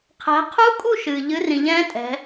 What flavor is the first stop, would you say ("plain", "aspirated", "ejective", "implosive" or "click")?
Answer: aspirated